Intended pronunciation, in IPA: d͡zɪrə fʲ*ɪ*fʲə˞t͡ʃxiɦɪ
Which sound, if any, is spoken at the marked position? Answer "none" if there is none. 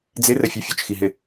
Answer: ə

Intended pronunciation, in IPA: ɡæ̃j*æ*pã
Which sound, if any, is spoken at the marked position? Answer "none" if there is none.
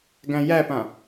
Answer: æ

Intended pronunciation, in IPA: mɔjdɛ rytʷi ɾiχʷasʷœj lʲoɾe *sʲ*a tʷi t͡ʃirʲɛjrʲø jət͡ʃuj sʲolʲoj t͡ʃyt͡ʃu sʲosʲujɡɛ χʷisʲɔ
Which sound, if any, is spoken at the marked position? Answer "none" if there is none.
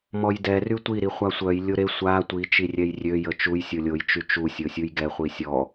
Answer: sʷ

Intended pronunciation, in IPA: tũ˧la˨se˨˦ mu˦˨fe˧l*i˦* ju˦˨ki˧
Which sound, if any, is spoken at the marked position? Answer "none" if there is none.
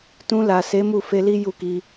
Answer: i˦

